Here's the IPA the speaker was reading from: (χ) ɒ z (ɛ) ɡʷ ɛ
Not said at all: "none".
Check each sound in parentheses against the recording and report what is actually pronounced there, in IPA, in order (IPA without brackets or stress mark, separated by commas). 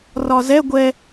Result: r, ɛ